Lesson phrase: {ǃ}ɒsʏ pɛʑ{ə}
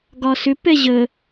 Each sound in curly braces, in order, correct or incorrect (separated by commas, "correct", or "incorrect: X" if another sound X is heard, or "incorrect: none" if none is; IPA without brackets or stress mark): incorrect: ɡ, correct